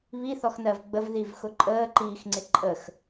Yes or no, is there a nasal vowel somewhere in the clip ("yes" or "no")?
no